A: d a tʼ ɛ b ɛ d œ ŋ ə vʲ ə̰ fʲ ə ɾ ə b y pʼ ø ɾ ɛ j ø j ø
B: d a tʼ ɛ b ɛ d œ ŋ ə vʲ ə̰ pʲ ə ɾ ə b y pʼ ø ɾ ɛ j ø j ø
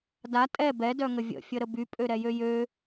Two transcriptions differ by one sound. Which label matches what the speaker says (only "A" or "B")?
A